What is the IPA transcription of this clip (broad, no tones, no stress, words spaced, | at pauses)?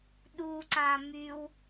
ɗuǀã myw